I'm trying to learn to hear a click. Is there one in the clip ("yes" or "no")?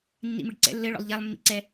yes